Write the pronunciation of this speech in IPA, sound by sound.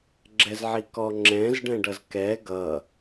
ɡ͡ǁ ɛ z ʕ i k ɔ ŋ͡ǁ ɛ̃ z ɖ ɛ̃ ɖ ʌ z k ɛ ɡ ʌ

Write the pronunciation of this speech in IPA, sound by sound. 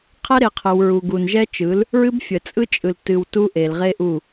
qʰ ɛ˦ ɾ e˨ qʰ ə˨ w ɹ u˨ ɡ u˨ n ʒ ɛ˦ t͡ʃ ɯ˨˦ l | ɹ ɨ˦ b fʲ ə˨ t͡sʼ ɯ˦ t͡ʃʼ ɯ˨ l t ɨ˨ w t u˦ ʔ e˨ l ʁ e˦ ʔ u˦˨

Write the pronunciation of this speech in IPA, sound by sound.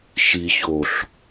ʃ i ç o ɬ

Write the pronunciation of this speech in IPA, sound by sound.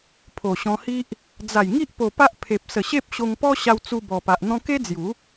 pʰ o˨˩ ɕ ɔ̃˧ h i˦ ʔ | d͡z a˨˩ j ŋ i˦ ʔ p o˧ p a˦ ʔ pʰ e˨ p̚ s ə˨˩ ɕ e˦ p̚ ɕ o˧ ŋ p ɔ˦ ɕ a˧ w t͡s u˧ b ɔ˨˩ p a˨ ʔ n̪ ɔ̃˧ k e˦ d͡z j u˨˦

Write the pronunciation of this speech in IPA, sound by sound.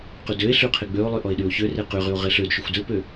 q y d ø e̯ ɬ y qʰ e ɡ͡b ø o̯ lˠ y ʔ ɔ e̯ ɗ y o̯ ç ø r e q y ʁ y o̯ ʁ e ɬ ø d ʃ y xʷ d ø p ø

